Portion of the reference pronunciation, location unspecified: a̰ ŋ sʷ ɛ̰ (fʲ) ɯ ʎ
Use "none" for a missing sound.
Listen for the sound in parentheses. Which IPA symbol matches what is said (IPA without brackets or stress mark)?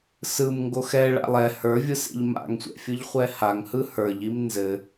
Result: fʲ